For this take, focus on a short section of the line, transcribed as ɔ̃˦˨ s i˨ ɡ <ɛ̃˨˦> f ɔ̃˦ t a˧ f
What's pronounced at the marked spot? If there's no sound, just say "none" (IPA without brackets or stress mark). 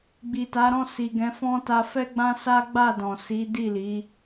ɛ̃˨˦